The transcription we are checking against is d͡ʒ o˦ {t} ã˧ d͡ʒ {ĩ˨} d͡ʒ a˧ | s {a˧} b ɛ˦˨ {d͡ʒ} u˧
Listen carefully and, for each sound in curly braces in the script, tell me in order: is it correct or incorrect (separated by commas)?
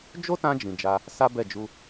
correct, correct, incorrect, correct